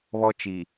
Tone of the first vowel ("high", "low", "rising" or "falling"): high